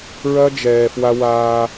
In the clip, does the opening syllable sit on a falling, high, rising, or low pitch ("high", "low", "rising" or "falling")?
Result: high